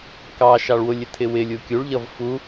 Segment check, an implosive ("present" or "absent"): absent